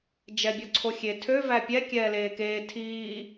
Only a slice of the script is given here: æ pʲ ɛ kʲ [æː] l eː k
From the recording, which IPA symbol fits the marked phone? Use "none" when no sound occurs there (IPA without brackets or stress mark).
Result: ɛː